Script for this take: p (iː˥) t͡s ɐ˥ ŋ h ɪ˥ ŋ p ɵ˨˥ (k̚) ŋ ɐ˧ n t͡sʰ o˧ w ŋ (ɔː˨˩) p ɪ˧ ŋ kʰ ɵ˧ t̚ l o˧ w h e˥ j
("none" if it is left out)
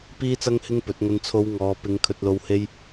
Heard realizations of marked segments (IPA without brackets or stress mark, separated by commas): iː˥, t̚, ɔː˨˧